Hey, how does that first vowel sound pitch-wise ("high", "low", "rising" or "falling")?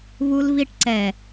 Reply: high